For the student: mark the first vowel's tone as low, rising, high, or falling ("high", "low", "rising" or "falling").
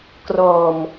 low